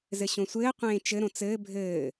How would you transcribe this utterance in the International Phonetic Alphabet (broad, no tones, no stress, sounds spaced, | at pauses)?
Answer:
z ɘ ɕ õ sʷ ɘː qʷ ẽː t͡ʃ ɘ ɾ õ t͡s ɘː bʱ ɘː